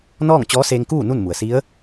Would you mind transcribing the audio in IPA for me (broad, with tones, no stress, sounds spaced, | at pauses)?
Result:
n ɔː˥˨ ŋ t͡ɕ ɔː˧˥ s eː˧ ŋ k uː˥˨ n u˥˨ n m u˩ ə̯ s i˧˥ ə̯